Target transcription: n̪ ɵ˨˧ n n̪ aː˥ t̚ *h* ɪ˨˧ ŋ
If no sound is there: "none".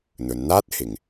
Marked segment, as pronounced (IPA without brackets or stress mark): h